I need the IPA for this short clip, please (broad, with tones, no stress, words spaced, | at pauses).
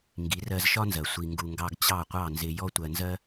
ŋɡi˩˥rɜ˧zʃɒ˥nzɜ˩ sʷi˧ŋɡu˧ŋɡɑ˥ɡ t͡ɕɑ˥˩qʷɑ˥˩nzɪ˧ jɔ˥tʷɜ˧nzɜ˥